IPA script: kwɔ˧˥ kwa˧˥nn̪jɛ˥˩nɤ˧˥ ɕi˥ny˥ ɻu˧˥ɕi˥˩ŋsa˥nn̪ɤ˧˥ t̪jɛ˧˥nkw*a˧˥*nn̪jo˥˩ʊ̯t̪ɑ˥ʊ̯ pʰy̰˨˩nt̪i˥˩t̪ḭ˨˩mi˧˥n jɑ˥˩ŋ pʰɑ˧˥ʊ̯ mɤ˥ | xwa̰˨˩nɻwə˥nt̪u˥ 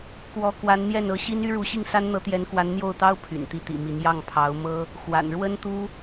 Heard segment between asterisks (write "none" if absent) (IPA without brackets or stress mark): a˧˥